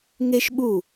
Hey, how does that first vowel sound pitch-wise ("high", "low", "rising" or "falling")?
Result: high